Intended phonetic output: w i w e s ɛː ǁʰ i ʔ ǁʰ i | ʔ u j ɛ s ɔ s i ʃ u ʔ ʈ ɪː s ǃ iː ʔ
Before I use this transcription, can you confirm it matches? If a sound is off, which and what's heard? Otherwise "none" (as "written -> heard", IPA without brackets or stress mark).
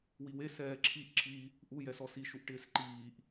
none